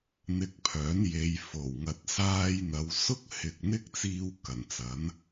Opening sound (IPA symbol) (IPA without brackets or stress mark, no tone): n̪